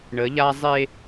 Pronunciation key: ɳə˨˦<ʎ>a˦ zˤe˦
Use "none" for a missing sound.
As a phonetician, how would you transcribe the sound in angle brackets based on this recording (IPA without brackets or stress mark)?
ʎ